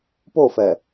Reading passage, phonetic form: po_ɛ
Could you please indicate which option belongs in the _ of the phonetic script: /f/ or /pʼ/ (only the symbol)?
f